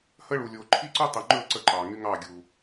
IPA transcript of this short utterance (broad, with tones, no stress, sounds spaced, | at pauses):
h ə˦ ɭ u˨ lʲ o˨ ǃʰ i˦ ǀ ʊ˦ tˤ i˨ ŋ͡ǃ ɵ˦˨ ǀ ə˦ ǃ ɑ˨ ŋ y˦ ŋ ɑ˦˨ ɡʲ u˨